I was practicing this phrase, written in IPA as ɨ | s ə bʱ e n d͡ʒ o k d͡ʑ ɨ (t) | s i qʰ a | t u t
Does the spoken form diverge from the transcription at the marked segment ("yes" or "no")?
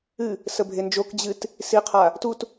no